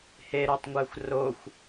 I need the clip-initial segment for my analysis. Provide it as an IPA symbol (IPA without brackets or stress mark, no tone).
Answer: h